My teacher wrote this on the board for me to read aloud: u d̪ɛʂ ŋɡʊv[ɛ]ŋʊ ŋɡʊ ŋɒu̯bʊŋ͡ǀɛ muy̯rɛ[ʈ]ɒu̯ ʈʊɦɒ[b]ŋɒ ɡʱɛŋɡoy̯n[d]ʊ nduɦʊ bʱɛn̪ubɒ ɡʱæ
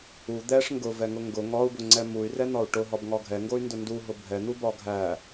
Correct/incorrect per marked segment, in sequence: correct, incorrect: n̪, correct, correct

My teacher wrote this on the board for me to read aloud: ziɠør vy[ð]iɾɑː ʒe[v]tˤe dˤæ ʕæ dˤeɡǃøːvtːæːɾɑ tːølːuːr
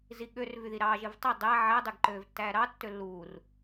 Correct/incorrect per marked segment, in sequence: correct, correct

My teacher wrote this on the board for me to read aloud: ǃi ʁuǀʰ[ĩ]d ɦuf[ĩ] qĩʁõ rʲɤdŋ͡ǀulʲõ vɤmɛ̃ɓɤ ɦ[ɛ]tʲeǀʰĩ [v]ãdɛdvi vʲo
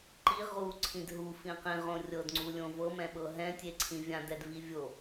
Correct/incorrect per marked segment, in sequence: correct, correct, incorrect: ɛ̃, incorrect: vʲ

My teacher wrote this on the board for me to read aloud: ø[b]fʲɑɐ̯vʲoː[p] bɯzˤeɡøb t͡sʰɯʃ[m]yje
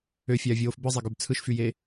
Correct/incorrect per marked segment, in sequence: incorrect: none, incorrect: f, incorrect: f

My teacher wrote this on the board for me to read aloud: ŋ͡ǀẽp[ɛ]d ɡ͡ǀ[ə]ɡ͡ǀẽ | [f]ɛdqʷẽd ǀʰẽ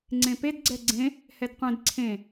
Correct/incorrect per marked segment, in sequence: incorrect: e, incorrect: ɛ, incorrect: h

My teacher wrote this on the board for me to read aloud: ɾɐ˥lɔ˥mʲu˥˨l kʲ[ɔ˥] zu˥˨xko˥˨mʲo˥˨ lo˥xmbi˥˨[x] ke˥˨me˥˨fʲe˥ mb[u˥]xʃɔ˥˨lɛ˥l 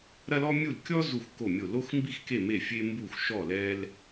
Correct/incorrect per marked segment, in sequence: correct, correct, incorrect: u˥˨

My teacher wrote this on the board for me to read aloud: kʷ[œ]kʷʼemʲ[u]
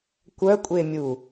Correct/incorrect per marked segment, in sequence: correct, correct

